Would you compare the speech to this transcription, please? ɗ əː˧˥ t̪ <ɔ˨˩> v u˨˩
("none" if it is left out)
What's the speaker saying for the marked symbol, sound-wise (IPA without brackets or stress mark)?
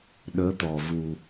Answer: ɔ˨˩